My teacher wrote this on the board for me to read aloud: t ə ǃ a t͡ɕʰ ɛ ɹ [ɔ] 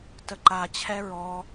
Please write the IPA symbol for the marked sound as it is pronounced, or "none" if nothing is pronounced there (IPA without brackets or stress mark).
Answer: ɔ